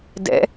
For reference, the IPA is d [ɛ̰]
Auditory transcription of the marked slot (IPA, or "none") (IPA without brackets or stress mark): ɛ̰